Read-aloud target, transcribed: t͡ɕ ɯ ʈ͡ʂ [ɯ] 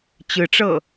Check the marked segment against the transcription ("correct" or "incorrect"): incorrect